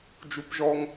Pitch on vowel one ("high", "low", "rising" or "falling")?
high